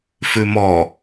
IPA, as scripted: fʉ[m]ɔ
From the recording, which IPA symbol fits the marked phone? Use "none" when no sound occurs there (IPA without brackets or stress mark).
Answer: m